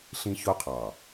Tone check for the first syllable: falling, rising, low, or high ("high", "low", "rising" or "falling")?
high